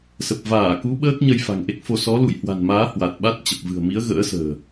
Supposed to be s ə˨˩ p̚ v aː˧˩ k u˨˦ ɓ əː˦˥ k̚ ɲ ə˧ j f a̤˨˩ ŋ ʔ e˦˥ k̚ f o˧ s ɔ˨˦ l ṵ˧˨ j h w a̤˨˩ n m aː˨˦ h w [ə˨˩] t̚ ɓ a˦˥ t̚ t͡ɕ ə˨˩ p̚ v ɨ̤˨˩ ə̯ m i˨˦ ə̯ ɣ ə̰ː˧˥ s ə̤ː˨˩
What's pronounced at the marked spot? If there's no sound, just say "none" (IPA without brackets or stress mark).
a˨˩